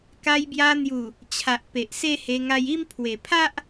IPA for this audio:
ka˧jbja˧n̪ju˨˩ | t͡ɕʰa˨ʔpe˨ʔse˦he˧ ŋa˧ji˦mpʰwe˨˩ pʰa˦ʔ

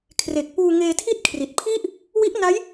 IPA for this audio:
kʰre˨˩k̚puː˧ŋeː˧tʰi˥˩t̚ kʰri˨˩t̚pʰi˥˩ʔ | wi˦˥ʔna˦˥j

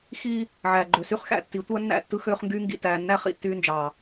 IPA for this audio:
xiː˦ | ʕæː˨ɡ͡ǃø˨sy˦χ xæ̰˨tːi˨˦ tʷæ˦nːæ̰˦˨ tːɯ˦xøː˦χŋɡyː˦ŋɡḭ˨ tæː˨nːæ˦ χḭ˨tːyː˦nd͡ʒɑː˨

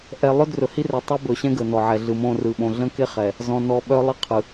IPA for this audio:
ʔɛ˨lˠɵ˦ drɵ˨hi˦rœ˨ tˤo˦bɵ˨ɕɛ̃˦ ɡə˨nɔ˨ ʕɛ˨ ɮɯ˨mõ˦˨rɯ˨ ɓõ˨ɮə̃˦ke˦ χɛ˨ | zɔ̃˨nɔ˨ ɓœ˦lˠi˦qʰɯ˨

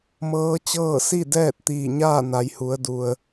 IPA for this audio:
mɤː˧˥t͡ɕɤː˥˨ si˥˨ dɛː˥˨t̚t̪iː˧˩ɲaː˥˨na˩˧j hu˩˧ə̯du˩ə̯

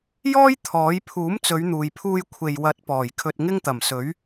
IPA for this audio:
jɔː˥j t̪ʰɔː˨˥j pʰuː˨˥mt͡sɵ˨˧ɥn̪uː˨jpʰuː˧j kʷʰe˨jwɐ˨˥t̚ pɔː˨˩jkʰɵ˧t̚ ŋɪ˥ŋt̪ɐ˨˩msɵ˨˥ɥ

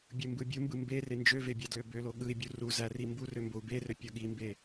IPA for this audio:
bʲɯmbɯbʲumbɯ mbe rend͡ʒøve bʲɑdløbølo ɠɯi̯bʲu ru zærimburø mbou̯berø pʲoɠimbe

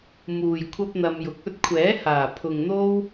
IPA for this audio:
muː˨jkʷʰɐ˥p̚ n̪ɐ˧mjʊ˨k̚ ɵ˥t̚kʷʰɛː˨˥haː˨˩ pʰʊ˨ŋn̪o˥w

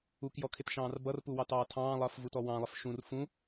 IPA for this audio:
ukjɔkʰɪtʃɑ̃ːr bʌrpuwɑtɑː tʰɑ̃ːlˠʌːfvutɔ wɑ̃lˠɪf ʃũr fũ

